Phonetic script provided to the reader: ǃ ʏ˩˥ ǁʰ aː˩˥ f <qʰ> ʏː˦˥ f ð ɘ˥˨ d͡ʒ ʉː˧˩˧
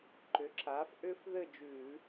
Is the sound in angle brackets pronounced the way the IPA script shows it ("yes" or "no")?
no